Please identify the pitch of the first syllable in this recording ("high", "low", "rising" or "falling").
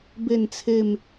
falling